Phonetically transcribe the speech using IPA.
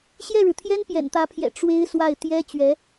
ɕ j ɛ˥˩ ɻ ɻ̩˩ t̪ʰ j ɛ˥ n p j ɛ̰˨˩ n t̪ ä˧˥ pʰ j ɛ̰˨˩ ʈ͡ʂ w e˥ ɪ̯ s w a˥˩ ɪ̯ t̪ j ɛ˥ t͡ɕ ɥ ɛ˧˥

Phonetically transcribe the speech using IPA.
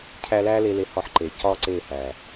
cʰ æ˧ l æː˦ l e˧ l e˧ h ɒ˧ ħ ǃ e˨ c ɒ˦ ǀ eː˦˨ h æː˨

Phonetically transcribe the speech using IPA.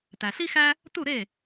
t æ˩ ɬ i˥ x æ˥ | t u˥˩ ɾ e˥˩

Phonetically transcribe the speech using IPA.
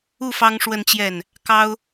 u˥˩ f ɑ˥ ŋ ʂ w ə˥˧ n t͡ɕ j ɛ˥˩ n | k ɑ˥ ʊ̯

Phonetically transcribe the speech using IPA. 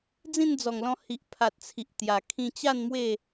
d͡z ĩ˥˧ n d͡z ɔ˨˩ ŋ l ɔ̃˧ h i˨ ʔ pʰ a˨ t̚ t͡sʰ i˨ ʔ t̪ j a˨˩ kʰ ĩ˥˧ t͡ɕ a˥˧ n m w e˥˧

